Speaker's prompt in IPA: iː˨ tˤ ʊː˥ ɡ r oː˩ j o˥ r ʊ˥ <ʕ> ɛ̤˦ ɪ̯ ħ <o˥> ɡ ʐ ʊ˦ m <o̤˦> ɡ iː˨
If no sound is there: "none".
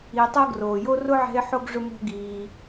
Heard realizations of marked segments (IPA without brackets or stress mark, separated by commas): ʕ, o˥, o̤˦